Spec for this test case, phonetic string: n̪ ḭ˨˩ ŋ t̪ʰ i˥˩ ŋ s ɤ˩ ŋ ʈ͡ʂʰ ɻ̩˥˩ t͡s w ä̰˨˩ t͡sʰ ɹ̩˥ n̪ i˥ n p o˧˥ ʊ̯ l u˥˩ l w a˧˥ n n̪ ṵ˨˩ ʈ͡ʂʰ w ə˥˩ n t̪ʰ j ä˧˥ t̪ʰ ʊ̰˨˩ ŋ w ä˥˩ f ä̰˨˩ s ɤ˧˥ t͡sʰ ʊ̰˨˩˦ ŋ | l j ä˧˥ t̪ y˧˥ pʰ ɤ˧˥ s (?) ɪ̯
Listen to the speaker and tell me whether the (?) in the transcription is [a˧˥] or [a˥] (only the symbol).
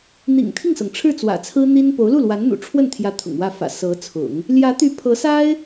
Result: a˥